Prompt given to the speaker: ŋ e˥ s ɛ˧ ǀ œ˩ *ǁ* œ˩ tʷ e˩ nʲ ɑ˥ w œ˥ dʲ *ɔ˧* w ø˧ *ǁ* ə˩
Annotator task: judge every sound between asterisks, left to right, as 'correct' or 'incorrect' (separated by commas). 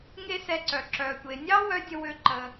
correct, incorrect, incorrect